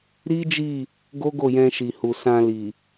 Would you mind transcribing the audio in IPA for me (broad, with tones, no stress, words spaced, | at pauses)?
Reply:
ɾi˦d͡ʒi˦˨ | ɡo˦ɡo˦˨jɛ̃˧ʃi˨ hu˨sã˧li˨